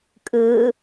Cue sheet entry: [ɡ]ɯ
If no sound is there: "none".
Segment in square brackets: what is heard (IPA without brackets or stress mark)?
kʼ